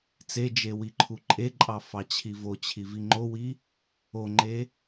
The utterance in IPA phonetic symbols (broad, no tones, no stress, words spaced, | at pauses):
t͡sed͡ʒe wiǃʰuǃʼeǃʼɑ fɑt͡ɕʰivot͡ɕʰi viŋ͡ǃowi | oŋ͡ǃe